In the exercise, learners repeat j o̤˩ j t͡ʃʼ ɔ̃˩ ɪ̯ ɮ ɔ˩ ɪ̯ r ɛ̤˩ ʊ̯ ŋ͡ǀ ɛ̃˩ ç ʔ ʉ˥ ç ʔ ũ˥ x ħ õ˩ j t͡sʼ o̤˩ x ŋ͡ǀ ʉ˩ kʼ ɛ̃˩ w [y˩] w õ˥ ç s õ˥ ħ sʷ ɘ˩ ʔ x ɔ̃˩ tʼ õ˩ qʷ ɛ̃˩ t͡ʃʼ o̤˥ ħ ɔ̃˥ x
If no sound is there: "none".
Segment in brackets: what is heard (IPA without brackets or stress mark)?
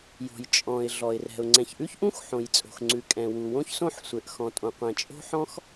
u˩